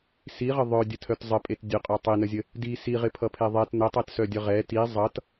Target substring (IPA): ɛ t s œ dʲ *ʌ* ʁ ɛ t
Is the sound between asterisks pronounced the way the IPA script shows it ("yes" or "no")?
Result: yes